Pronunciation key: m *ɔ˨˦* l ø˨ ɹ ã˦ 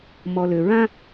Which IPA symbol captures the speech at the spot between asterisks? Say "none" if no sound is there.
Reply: ɔ˨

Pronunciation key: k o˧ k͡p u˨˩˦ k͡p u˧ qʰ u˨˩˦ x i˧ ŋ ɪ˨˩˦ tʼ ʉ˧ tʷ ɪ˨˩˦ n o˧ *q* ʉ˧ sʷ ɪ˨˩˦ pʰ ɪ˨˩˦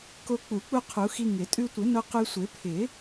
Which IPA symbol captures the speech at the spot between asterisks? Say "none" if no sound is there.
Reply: q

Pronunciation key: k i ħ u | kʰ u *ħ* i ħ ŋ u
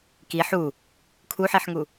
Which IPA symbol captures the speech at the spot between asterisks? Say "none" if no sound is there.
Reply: ħ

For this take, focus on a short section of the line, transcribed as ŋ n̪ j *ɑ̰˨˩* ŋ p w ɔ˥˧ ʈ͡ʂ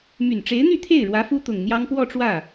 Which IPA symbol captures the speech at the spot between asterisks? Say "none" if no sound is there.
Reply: ɑ˥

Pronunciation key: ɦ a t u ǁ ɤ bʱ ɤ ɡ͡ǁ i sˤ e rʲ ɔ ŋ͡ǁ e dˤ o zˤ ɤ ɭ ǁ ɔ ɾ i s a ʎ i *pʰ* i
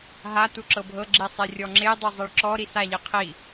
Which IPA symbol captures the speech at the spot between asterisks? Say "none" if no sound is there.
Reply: qʰ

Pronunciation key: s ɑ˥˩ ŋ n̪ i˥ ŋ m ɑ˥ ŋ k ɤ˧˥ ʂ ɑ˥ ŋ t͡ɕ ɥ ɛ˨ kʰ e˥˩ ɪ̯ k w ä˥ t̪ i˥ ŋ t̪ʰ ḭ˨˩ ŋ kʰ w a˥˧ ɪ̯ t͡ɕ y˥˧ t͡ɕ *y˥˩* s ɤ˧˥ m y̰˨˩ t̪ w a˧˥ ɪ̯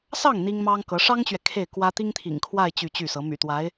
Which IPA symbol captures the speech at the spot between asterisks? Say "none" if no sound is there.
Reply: y˥˩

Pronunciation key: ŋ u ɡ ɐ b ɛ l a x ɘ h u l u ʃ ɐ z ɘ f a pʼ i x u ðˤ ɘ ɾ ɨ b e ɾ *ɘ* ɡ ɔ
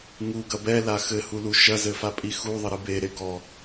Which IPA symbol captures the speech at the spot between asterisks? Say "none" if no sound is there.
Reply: e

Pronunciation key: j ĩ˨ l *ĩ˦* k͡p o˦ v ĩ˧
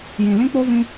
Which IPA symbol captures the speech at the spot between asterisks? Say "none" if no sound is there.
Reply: ĩ˦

